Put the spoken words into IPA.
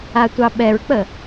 a tʷ ɑ ɓ ɛ ɹ k͡p ə

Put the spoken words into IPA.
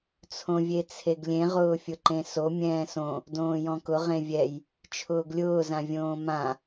t͡sʰ õ vʲ e t͡sʰ e ɡ lʲ ẽ ʁ ʊː fʲ ʊ ǃ ẽ s o mʲ ɛ̃ː s õ | d õː j ɔ̃ k ʊ ʁ ẽ vʲ ɛ j | t͡ʃʰ ʊː ɡ lʲ ʊː z ã vʲ õː m ã

